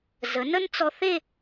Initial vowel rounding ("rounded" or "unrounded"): unrounded